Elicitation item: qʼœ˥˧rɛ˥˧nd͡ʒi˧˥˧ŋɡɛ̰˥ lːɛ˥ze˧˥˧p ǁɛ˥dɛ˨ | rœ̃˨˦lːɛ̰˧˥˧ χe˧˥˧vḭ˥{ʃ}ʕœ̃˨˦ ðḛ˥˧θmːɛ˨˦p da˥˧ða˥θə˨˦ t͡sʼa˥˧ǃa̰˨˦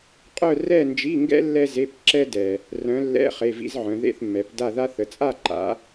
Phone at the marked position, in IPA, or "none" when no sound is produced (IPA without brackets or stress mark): z